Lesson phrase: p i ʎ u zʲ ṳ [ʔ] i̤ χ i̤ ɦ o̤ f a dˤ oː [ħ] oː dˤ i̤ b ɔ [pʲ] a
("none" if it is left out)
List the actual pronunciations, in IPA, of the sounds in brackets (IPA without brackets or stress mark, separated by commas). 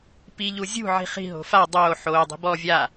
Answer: ʕ, ħ, vʲ